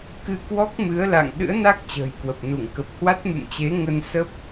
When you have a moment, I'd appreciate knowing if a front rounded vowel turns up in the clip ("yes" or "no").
no